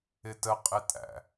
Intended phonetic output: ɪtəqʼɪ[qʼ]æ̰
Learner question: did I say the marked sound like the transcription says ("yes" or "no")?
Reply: no